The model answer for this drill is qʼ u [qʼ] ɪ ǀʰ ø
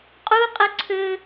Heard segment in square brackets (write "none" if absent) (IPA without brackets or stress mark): qʼ